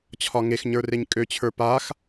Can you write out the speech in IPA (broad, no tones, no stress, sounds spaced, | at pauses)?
t͡ɕʰ ɒ ŋ e x ɲ ə˞ r e ɲ kʼ ø t͡ɕʰ ə˞ p a x